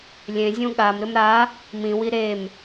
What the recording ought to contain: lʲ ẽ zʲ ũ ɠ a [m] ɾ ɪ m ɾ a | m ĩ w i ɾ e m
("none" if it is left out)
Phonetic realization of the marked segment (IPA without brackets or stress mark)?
m